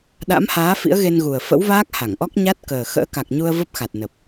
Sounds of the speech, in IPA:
ɗ a̰˧˥ m h aː˨˦ f ḭ˧˥ ə̯ ɣ e˧ n ɣ u˨˩ ə̯ f ə̰˧˥ w v aː˦˥ k̚ h a˧˩ ŋ ʔ ɔ˦˥ k̚ ɲ a˦˥ t̚ k əː˨˩ x ə̰ː˧˥ k a˨˩ k̚ ɲ u˧ ə̯ v ə˦˥ p̚ x a˨˩ t̚ n ə˨˩ p̚

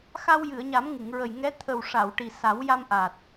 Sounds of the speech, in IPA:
x a˧ w j ɨ˨˩˨ ə̯ ɲ a˨˩˦ m ŋ ɨ˨˩˨ ŋ ɹ ə˨˩ j ŋ ɛ˧˥ t̪ʰ ə˨˩ w ʂ a˨˩˨ w ʈ i˨˩ s a˨˩˦ w j a˧ m ʔ a˨˩ t̚

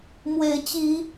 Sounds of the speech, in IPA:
m w e˨˦ ɪ̯ t͡ɕ i˨˦

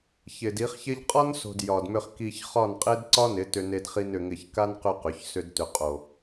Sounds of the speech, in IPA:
ç ɪ˨ d i˨˦ χ ç ɪ˧ ʎ qʼ ɒ˦ n s o̤˨ d j ɒ˨ d m ʏ˧ χ k i˧ ç χ ɒ˦˨ n qʼ e˦ d ǀ ɒ˦ n ɪ˨˦ t ʏ˧ n e˧ d χ i˧ n ʏ˧ ŋ ɪ˦˨ ç k a˦ n q ʏ˧ q ʏ˨˦ ç s ʏ˦ d t ʏ˧ qʼ o˨

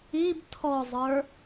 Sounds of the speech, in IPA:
i b tʰ ɔ zˤ ə˞

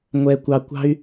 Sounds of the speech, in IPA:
ŋʷ ɛ˨ kʷ ɑ˨ kʷ ɑ̤˧ y̯

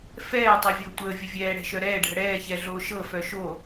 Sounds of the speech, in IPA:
f ɛː tˤ ɤ vʲ ʊː tʷ əː vʲ ə vʲ ɛː ɽ ɛ̤ ʃ œ ɾ ɛː ɖʱ ə ɽ ɛː ç ɛ ɮ oː ʃ ɤ f œ ʃ o

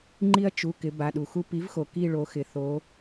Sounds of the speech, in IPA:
ŋ͡ǃ i˦ ɐ̯ t͡ʃ u˩˧˩ k ɪ˩˧ b a˩˧˩ ɗ u˩ x u˦ p i˩˥ v x o˩ k i˦˨ ɭ o˩˧ x ɪ˩ θ o˩˧

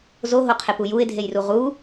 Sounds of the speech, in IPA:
z o ɦ o qʰ e p u j u ɪ̯ dʱ e j r u ʁ u

